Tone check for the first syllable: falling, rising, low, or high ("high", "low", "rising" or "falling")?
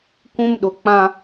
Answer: high